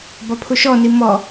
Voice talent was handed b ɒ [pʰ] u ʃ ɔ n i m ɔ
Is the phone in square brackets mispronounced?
no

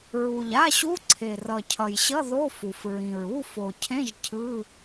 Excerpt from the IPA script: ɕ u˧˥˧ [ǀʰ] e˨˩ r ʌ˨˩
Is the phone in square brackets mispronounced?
no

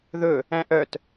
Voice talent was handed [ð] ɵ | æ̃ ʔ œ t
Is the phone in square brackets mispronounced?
no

